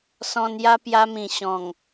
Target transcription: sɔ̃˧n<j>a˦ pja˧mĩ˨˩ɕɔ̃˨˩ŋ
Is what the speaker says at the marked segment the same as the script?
yes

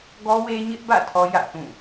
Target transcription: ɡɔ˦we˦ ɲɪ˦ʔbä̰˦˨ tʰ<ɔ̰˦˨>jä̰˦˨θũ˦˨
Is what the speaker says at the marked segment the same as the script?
no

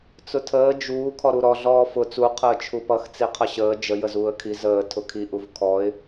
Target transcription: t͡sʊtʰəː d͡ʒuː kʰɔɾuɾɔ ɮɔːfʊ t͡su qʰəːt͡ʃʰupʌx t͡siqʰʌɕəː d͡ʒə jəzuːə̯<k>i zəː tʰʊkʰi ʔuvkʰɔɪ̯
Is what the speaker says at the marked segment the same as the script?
no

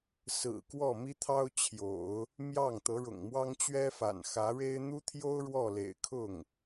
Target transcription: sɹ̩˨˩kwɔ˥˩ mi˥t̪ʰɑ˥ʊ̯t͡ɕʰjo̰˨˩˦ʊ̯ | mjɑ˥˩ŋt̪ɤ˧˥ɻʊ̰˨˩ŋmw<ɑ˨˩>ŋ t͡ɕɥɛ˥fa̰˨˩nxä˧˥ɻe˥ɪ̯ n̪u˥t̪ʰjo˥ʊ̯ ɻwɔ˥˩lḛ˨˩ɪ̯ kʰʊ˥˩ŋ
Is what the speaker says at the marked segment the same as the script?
no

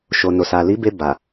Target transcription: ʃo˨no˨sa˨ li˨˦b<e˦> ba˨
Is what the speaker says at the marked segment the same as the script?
no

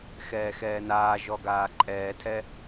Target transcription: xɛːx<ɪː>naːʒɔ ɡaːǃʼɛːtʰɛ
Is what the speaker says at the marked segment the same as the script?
no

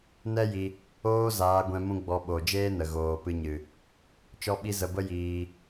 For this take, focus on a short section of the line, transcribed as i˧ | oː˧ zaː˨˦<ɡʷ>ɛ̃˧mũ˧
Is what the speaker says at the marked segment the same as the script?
yes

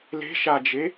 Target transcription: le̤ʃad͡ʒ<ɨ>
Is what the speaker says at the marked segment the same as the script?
no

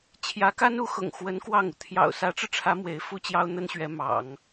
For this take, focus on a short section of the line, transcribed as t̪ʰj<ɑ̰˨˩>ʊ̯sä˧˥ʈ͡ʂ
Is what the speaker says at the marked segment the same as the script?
yes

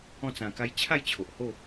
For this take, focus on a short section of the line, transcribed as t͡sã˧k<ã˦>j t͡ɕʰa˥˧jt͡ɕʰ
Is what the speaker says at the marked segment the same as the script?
no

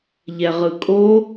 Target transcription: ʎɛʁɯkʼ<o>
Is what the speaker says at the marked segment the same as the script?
yes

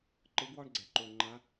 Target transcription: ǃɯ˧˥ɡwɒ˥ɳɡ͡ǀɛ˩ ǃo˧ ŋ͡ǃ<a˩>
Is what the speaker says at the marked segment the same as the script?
no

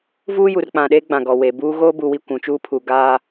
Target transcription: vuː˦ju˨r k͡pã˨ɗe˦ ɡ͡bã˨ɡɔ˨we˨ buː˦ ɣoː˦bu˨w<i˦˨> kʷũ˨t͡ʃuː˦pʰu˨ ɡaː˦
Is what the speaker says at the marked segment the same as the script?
yes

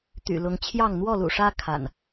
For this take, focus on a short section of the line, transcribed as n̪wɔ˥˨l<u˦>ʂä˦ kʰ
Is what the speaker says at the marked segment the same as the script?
no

